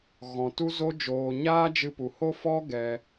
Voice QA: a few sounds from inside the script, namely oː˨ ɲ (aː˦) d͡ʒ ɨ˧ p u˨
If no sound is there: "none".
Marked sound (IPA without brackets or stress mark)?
aː˦